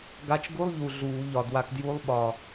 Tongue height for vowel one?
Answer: low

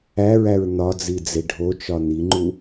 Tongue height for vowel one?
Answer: low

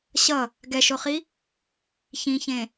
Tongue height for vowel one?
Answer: mid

